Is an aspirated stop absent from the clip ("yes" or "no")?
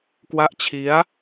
no